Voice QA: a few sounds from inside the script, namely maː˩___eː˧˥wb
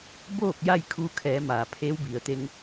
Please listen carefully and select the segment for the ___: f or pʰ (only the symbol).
pʰ